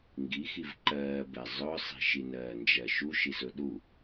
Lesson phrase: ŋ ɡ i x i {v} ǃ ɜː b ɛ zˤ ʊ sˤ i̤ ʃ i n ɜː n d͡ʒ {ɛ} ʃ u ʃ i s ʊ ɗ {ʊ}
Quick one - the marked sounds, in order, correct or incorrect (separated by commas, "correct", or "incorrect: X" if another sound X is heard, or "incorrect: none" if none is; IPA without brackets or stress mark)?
correct, incorrect: ɜ, incorrect: u